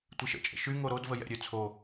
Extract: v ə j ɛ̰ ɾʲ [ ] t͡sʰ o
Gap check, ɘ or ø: ø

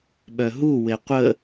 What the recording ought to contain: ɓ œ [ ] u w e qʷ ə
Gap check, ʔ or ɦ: ɦ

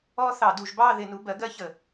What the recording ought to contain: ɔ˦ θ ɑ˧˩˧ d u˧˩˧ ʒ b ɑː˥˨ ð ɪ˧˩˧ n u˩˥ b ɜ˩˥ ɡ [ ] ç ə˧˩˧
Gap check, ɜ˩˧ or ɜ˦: ɜ˦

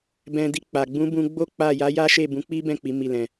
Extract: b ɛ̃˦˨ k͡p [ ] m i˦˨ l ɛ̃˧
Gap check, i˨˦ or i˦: i˨˦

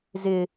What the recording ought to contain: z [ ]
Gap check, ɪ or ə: ɪ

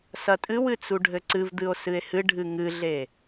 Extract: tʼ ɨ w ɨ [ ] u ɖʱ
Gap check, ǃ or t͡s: t͡s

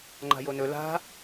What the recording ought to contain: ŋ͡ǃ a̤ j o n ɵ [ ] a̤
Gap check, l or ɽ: l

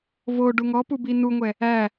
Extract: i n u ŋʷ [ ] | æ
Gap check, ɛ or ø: ɛ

